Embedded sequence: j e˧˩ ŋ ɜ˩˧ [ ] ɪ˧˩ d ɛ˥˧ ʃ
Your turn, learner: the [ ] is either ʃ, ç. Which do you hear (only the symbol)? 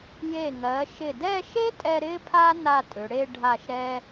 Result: ʃ